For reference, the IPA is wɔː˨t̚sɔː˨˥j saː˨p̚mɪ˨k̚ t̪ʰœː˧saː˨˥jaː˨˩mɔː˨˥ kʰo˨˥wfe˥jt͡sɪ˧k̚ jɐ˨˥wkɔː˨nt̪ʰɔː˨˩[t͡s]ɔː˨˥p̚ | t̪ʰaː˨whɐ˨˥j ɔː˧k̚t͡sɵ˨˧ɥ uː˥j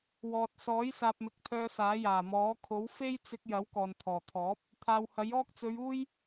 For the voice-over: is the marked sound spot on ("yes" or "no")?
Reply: no